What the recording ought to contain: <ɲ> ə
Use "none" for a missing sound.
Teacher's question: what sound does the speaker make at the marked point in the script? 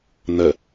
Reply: n̪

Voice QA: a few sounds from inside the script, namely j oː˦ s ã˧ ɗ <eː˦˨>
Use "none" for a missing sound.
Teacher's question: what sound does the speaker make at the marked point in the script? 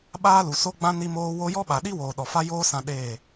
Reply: eː˦˨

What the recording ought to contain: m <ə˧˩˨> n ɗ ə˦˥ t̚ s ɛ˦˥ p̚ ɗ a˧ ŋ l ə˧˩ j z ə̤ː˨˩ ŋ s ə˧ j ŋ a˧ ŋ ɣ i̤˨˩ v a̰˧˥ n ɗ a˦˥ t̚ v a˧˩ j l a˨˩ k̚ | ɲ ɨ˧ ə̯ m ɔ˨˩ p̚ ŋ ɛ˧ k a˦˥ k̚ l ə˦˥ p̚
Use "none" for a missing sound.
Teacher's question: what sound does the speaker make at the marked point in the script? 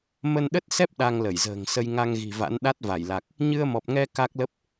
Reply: ə˧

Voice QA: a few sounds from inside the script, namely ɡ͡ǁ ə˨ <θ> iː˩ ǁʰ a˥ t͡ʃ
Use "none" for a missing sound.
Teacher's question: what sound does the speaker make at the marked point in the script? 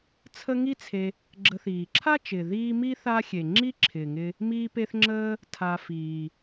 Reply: θ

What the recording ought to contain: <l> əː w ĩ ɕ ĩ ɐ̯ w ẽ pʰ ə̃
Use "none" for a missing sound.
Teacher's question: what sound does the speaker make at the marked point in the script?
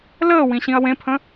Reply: l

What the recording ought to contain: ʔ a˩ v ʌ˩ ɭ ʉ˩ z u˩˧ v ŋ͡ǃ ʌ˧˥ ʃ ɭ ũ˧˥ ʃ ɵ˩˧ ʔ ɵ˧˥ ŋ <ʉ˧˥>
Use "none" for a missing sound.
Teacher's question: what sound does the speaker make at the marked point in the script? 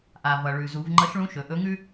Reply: ʉ˥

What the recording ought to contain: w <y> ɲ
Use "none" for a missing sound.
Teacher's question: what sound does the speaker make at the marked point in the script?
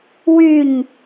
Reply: y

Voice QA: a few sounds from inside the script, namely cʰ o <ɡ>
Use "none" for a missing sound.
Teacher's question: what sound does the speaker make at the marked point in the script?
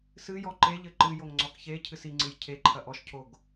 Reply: ɡ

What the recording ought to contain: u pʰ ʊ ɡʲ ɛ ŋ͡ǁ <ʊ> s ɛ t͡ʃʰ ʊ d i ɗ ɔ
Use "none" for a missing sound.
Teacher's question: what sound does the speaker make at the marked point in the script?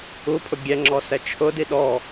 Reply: ɔ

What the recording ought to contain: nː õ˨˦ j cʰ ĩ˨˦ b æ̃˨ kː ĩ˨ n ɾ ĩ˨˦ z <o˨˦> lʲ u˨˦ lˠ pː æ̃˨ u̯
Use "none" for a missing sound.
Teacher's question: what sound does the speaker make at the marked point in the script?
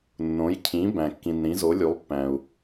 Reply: o˨˦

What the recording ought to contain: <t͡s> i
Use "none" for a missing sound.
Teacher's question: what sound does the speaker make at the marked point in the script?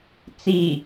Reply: t͡s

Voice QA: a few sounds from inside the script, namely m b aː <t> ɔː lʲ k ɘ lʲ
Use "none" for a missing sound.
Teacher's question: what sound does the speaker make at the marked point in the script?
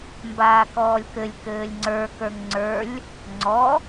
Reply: k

